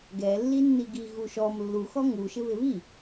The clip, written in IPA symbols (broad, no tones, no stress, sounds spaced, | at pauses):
ɡ ɛ lː i nː i ɡ i ɣ u ʃ ɔ m lː u x ɔ ŋ u ʃ ɪ β ɪ β i